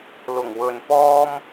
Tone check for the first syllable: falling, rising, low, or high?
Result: low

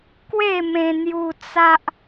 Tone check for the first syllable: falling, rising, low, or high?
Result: falling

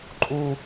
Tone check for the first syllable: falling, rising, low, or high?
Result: high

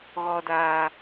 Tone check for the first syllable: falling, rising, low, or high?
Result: low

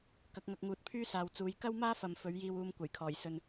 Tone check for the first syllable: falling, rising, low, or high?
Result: rising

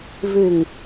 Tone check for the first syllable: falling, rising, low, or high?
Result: low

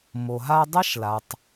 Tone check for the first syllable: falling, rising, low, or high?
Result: low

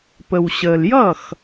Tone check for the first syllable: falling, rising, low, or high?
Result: low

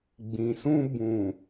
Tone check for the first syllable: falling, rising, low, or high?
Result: low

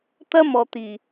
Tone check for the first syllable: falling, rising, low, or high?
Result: high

